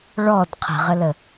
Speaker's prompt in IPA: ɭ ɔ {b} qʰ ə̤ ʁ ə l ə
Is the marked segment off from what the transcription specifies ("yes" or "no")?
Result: yes